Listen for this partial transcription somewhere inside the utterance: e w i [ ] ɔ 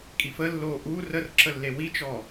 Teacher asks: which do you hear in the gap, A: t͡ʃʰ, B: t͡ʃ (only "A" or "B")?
B